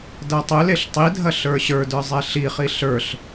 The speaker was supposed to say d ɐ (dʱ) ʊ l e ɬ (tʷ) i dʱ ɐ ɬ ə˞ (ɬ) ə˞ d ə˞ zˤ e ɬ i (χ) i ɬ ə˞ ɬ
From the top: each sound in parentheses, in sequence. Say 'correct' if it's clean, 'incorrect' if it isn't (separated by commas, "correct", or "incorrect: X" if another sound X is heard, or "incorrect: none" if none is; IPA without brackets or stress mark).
incorrect: tˤ, incorrect: tˤ, incorrect: ɕ, correct